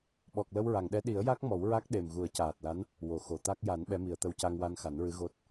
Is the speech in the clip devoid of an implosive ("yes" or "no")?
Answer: no